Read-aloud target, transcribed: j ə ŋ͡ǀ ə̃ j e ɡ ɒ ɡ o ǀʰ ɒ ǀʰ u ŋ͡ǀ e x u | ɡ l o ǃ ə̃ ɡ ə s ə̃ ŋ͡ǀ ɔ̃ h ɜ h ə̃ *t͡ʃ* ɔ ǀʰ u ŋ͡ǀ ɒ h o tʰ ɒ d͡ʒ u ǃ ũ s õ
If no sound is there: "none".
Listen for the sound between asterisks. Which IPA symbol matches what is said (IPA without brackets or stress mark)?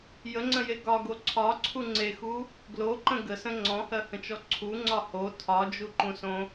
t͡ʃ